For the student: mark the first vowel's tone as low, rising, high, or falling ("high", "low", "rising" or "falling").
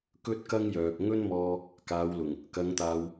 high